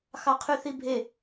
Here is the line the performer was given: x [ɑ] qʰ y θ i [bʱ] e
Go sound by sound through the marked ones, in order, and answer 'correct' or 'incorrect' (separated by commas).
correct, correct